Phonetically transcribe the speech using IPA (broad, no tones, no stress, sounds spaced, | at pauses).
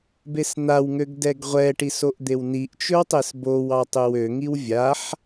b e s n̪ a w ŋ ø ɡ d ɛ ɡ ʁʷ ɛ ʈ i s o ʔ d̪ e w n i ʔ t͡ʃ ɵ w tˤ e s b o w ɑ tˤ ø w ø ŋ i w vʲ a ħ